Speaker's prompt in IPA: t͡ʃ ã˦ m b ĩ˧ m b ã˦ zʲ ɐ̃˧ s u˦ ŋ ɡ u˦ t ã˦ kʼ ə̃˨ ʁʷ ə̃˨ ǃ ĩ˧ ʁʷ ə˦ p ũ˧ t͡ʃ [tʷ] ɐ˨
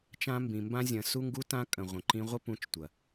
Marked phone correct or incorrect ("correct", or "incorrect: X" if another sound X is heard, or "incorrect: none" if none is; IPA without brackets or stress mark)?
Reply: correct